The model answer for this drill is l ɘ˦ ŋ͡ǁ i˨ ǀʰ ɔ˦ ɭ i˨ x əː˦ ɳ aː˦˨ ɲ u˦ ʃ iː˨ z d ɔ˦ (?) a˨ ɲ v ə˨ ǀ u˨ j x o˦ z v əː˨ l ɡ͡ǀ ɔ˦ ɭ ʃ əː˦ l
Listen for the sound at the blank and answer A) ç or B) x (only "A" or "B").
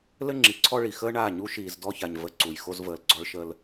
A